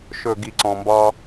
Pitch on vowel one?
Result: low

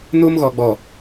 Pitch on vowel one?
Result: high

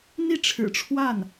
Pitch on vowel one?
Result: falling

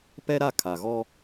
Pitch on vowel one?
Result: high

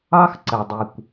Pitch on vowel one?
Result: high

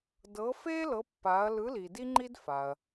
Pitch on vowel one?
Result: rising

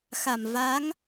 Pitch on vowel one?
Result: low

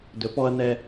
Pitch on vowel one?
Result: rising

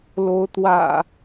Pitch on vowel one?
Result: rising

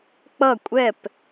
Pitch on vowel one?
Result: falling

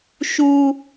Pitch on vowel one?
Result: high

